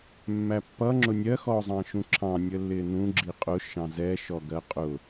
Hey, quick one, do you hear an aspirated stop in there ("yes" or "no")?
yes